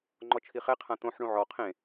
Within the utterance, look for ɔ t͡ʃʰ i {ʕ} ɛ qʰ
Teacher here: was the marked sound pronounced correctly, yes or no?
no